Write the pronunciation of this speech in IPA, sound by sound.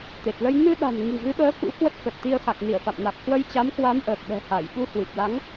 t̪e˨˩t̚lə˧j nɨ˧ɗa̤˨˩n ŋi̤˨˩ɣɨ˨˦ɓəː˨˦kṵ˧˥ kwə˦˥t̚kə˨˩t̚t̪i˧ə̯ xa˨˩k̚ni˧˩ə̯fa̰˧˨mna˨˩k̚ hwə˧jt͡ɕa˨˦mkwa˨˦m ʔəː˨˩k̚ɗɛ̤˨˩ha˧˩j ɓu˧hwɨ˨˩p̚la˨˦ŋ

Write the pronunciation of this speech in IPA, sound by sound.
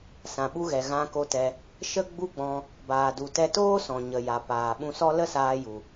sã˨ɓu˧ɣɛ˨ ɣã˧ko˧tɛ˧ | ʃə˦ɡ͡bu˦ɡ͡bɔ̃˧ | baː˨du˨tɛ˧ toː˦sɔ̃˨ ɲə˨ja˨ paː˨ɓũ˧sɔ˦ lə˦saː˧ju˨

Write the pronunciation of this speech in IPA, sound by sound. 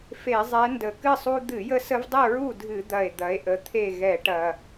fe˧˩˧ zˤɛ˨˦ndə˨˩kɨ˥˨sˤu˦ d̪ɨ˧˩˧jə˦sə˦vdˤɨ˥˨ ɹu˥˨dʱɨ˧˩˧d̪ɐ˨˩e̯ d̪ɐ˨˦e̯ʔə˨˦t̪ʰe˥˨ ɣɛ˧˩˧ʈɐ˨˩

